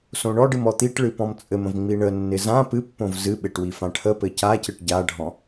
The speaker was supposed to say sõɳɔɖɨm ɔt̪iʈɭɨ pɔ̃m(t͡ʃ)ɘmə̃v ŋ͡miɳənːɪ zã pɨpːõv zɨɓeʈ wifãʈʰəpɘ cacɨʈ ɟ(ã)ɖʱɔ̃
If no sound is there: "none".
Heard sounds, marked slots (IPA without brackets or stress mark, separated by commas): t͡sʼ, a